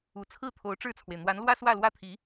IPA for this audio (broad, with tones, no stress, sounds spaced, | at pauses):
u˨˩ t͡sʰ ɹ̩˥˩ t̪ʰ o˧˥ ʊ̯ ʈ͡ʂ ɻ̩˥˩ t͡sʰ w e˩ ɪ̯ n̪ w a˧˥ n l w ä˥ s w ä˥˩ l w ä˥ t̪ʰ i˧˥